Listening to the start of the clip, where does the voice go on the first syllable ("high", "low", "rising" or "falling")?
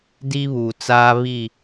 high